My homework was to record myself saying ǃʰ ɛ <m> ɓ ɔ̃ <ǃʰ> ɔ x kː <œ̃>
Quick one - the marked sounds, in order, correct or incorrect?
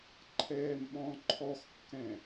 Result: correct, correct, incorrect

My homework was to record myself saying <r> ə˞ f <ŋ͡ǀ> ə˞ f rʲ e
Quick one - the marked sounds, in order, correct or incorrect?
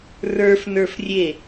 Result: correct, incorrect

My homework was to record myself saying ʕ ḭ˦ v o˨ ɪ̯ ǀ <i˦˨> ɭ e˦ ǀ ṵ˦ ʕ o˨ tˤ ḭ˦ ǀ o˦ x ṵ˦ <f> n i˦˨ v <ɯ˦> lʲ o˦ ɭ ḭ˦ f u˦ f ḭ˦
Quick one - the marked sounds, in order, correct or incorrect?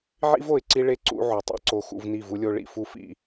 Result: incorrect, incorrect, incorrect

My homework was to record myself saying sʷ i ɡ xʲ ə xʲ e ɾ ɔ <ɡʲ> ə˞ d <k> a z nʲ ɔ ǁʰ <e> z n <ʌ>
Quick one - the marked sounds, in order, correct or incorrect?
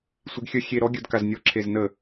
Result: correct, correct, correct, incorrect

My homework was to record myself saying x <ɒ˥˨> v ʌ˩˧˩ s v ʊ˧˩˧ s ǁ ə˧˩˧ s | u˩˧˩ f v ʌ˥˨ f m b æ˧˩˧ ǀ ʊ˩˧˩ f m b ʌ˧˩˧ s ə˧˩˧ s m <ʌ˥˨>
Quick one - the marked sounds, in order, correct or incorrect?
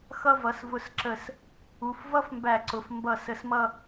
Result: incorrect, correct

